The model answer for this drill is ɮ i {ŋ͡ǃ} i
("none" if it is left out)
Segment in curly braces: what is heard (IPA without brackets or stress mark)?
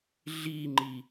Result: ŋ͡ǃ